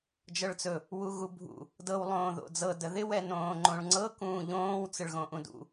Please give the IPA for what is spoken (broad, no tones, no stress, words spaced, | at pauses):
d͡ʒɤɭt͡sɵ | wuɣubʱṵ | dɤw lˠõːðo̰d͡zɤ dəðɪ wɛnõːŋ͡ǃõɭŋ͡ǀɤ kũːʎõːw t͡sɪɭɣõʔũdṵ